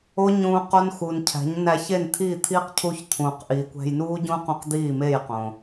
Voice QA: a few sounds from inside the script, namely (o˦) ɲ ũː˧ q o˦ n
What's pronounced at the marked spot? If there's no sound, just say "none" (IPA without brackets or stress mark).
o˦